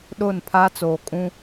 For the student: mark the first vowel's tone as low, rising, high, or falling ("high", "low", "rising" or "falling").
falling